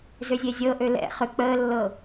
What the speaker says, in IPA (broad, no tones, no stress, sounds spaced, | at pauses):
z ø zʲ e zʲ ɤ ʔ ø l ɛ̰ χ ʏ k͡p əː lː ɤ